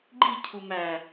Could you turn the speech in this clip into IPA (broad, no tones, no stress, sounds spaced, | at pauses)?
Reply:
ɡ͡ǃ i cʰ u m æ